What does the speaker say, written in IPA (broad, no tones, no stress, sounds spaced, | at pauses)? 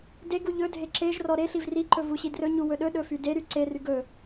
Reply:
d e ɡ u ʎ ɵ dʱ e ǁ e ʒ r ɔ ɾ e ɬ i v r i ǃ ɵ v u ɕ i d r ɵ ɲ u w ɵ ɗ ɵ ɗ ɵ f y d e ɾ y ǀ e r y ɡ ɵ